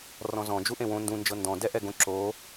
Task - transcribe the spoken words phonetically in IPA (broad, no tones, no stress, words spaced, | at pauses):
rɔ̃zɔ̃ d͡ʒuʔẽwõ ndũ nd͡ʒɤndɔ̃ dɛʔɛɡõ ǁo